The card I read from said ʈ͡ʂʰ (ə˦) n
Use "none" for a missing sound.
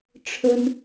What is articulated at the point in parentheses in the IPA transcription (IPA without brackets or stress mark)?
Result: ə˦